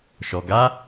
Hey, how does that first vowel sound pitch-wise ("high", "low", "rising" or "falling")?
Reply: low